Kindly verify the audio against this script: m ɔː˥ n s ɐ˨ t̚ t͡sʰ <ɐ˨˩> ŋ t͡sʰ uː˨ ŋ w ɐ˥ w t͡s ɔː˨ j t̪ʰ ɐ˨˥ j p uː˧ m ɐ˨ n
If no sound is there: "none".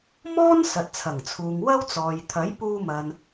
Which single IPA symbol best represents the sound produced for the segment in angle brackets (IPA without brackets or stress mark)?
ɐ˨˩